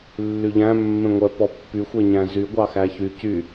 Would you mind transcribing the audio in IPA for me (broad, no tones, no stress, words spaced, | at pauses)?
lːyʎæ̃ mːẽŋʷœ pɔpːy xʷeɲæ̃zy ɡʷɑxæçy cy